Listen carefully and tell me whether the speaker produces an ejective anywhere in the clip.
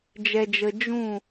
no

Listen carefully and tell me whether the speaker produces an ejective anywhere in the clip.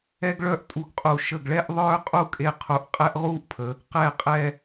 yes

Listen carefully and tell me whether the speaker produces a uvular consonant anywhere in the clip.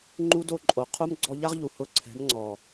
yes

